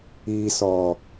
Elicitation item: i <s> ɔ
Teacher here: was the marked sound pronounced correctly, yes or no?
yes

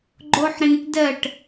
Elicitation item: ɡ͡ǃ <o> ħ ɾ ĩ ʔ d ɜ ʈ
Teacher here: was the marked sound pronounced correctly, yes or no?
yes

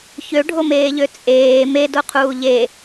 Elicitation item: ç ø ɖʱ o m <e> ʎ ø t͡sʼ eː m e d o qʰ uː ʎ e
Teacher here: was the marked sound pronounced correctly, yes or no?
no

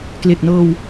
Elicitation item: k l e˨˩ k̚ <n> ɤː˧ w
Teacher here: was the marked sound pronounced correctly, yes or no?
yes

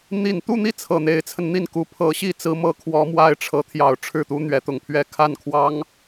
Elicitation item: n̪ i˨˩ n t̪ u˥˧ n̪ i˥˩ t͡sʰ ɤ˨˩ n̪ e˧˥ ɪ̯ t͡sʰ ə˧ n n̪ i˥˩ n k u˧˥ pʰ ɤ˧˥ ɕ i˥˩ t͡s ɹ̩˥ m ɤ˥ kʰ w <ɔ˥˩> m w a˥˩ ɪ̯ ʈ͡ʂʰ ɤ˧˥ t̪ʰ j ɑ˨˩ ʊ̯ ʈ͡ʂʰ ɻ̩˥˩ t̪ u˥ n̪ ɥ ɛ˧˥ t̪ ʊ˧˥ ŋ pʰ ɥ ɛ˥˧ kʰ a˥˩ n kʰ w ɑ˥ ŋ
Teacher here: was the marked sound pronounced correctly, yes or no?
no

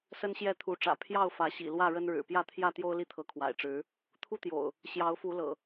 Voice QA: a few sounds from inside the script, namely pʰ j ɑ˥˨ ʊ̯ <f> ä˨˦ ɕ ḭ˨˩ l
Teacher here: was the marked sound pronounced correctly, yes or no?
yes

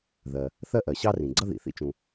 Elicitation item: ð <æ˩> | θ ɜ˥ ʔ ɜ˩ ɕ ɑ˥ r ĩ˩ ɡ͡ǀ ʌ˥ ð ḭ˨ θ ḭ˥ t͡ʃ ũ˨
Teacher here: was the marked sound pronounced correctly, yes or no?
no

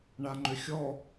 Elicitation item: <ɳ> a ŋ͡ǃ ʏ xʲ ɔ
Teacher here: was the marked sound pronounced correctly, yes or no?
yes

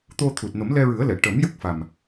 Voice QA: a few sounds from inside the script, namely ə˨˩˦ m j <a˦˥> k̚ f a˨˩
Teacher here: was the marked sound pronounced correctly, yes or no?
no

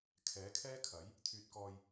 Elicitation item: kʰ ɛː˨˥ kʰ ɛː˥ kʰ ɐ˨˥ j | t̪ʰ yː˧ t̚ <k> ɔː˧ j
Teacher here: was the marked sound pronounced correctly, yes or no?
yes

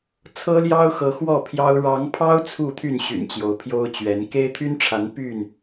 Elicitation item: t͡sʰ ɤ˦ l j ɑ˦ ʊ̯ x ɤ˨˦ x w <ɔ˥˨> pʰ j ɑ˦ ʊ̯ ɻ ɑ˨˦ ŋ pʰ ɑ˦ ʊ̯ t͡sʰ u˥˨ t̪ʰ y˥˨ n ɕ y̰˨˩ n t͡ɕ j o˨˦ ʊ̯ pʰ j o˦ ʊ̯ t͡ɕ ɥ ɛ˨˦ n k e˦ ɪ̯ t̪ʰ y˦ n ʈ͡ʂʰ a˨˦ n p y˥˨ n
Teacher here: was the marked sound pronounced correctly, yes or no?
yes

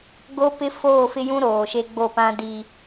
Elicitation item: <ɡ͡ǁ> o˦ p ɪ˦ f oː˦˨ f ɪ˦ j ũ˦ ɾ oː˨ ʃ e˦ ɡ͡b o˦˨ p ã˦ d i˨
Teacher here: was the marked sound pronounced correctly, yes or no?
no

